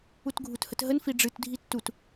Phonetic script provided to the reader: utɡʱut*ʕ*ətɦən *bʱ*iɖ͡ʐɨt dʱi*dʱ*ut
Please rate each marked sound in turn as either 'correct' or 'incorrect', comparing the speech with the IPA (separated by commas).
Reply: incorrect, incorrect, incorrect